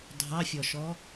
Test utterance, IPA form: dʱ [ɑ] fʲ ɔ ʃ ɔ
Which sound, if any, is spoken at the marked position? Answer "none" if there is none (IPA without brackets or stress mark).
ɑ